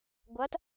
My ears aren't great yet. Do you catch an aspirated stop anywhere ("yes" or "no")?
no